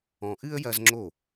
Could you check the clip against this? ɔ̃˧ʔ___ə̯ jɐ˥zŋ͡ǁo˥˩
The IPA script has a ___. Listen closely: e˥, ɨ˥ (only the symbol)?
ɨ˥